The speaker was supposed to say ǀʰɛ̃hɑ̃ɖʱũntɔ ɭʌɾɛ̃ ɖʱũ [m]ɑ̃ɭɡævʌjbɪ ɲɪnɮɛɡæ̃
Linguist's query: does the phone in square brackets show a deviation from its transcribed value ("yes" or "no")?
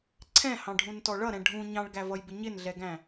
yes